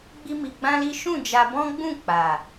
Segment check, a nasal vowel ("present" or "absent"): present